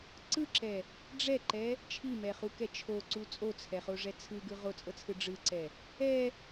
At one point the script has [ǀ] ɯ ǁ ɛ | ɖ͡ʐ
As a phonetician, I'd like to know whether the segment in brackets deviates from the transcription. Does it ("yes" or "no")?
no